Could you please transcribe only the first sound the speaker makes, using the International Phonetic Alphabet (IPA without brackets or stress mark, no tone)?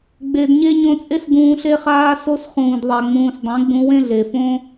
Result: ɡ͡b